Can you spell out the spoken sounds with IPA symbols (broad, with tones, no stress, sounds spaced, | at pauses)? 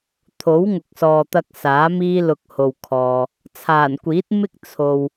t̪ʰ o˨˥ w ŋ ʊ˨ k̚ s ɔː˨ t̪ ɐ˧ k̚ s aː˨˥ m iː˥ l ʊ˧ k̚ h o˨ w kʰ ɔː˨ | t͡sʰ aː˨˩ n kʷ iː˨˥ t̚ m ɪ˥ k̚ t͡sʰ o˨ w